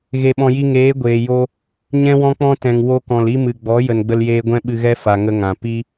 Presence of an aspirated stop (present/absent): absent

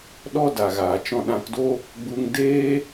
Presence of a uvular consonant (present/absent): absent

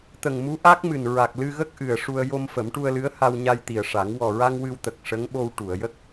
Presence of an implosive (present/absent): present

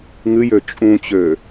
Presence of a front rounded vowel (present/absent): present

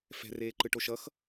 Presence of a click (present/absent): present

